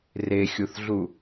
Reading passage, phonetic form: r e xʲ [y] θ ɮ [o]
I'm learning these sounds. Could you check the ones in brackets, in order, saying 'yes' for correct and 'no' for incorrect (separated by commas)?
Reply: no, no